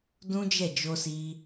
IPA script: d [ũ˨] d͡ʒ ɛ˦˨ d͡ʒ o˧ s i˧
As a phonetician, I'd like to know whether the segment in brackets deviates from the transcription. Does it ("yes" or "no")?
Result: yes